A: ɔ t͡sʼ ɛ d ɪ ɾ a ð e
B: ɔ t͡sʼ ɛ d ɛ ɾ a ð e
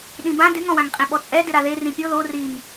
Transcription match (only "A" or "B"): A